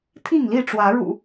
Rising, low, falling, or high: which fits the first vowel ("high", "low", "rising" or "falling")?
falling